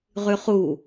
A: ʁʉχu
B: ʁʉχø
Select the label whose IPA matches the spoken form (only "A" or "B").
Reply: A